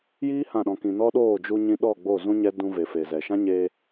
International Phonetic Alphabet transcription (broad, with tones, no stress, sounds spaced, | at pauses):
j iː˦ h ã˦˨ ɗ ɔ̃˧ k ĩ˧ n ɔ˦ ɗ oː˦˨ d͡ʒ u˧ ɲ ĩ˧ ɗ ɔ˦˨ ɡ͡b o˦˨ z ũ˦ ɲ ɛ˦ d ũ˧ v e˨ f e˨ z ɛ˨ ʃ ã˦ ɲ e˧